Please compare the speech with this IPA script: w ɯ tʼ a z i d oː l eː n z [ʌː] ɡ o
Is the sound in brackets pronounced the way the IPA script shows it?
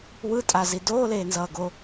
yes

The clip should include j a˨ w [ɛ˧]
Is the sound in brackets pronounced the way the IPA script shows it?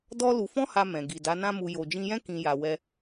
yes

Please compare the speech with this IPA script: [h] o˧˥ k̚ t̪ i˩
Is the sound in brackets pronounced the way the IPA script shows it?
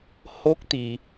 yes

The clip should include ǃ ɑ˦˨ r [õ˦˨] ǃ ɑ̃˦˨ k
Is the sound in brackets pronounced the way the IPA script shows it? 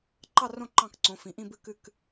yes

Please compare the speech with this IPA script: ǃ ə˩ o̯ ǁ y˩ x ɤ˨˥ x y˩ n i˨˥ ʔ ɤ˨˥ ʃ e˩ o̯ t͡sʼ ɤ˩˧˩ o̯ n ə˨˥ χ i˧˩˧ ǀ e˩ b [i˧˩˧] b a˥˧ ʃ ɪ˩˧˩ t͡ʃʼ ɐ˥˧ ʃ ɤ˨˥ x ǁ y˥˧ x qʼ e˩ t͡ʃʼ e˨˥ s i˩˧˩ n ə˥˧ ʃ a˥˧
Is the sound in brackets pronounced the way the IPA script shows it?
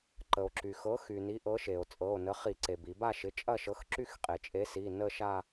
yes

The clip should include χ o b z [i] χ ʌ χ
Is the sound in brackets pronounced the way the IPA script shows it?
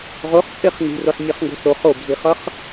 yes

